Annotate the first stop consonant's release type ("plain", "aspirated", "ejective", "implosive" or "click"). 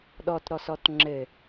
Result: implosive